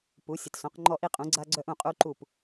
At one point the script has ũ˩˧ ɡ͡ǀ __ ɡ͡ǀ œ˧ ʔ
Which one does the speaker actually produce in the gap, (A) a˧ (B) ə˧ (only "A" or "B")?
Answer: A